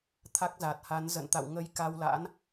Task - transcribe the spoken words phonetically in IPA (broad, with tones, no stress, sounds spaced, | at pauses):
t̪ʰ a˦˥ k̚ z a˨˩ t̚ h a˨˦ n z ə̰˧˨ n t̪ a̰˧˨ w ŋ ə˧ j k a˧ w l a̰˧˥ n